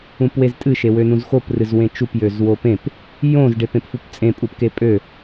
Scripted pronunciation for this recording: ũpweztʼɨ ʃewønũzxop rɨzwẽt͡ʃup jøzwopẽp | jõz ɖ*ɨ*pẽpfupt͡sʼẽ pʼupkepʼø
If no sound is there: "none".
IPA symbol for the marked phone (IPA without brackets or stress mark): e